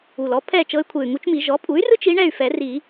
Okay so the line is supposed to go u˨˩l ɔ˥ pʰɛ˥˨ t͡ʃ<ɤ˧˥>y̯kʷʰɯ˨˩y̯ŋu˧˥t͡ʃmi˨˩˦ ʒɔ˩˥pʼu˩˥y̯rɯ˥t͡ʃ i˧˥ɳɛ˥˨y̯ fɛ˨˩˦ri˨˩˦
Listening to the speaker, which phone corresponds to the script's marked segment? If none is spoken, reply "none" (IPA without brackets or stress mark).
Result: ɤ˧˥